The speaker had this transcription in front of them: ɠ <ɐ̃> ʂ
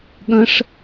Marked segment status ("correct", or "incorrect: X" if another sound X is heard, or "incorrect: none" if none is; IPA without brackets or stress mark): correct